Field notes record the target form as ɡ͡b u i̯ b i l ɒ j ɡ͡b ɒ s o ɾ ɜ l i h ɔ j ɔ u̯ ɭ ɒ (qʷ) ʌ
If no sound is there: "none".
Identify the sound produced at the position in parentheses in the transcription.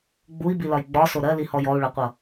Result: qʷ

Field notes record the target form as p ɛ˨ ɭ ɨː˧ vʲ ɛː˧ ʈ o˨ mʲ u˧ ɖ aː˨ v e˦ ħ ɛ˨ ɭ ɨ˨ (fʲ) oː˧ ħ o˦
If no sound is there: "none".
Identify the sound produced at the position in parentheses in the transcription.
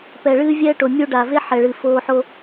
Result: f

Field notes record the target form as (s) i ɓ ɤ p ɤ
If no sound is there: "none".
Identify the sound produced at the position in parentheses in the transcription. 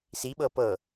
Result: s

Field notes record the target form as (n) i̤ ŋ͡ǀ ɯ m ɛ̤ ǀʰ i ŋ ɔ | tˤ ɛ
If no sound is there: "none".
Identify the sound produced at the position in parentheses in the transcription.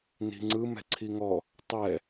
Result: n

